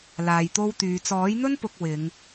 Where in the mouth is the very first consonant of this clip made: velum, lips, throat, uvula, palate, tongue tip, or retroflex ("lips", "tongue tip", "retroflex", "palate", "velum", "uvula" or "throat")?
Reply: tongue tip